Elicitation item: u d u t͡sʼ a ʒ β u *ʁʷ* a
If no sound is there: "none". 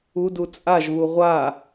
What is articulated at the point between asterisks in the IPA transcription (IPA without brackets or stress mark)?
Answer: ʁʷ